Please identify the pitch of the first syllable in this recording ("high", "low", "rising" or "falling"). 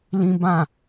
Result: high